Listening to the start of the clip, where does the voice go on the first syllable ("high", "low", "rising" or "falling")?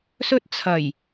high